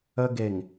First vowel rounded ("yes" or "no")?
no